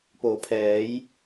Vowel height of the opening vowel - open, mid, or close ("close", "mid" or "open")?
mid